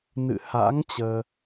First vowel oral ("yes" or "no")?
yes